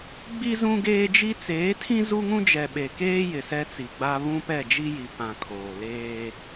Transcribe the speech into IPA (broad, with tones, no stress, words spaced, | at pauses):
ɡ͡bi˦ zũ˦ɡeː˦d͡ʒi˦ t͡seː˨˦tʰĩ˦ zu˦ŋũ˦ d͡ʒɛ˨ɓe˨keː˦ jɪ˨sɛ˦t͡si˨ɡ͡ba˦ βũ˦pɛ˦˨d͡ʒi˦ji˨ pã˨ kʰoː˨leː˦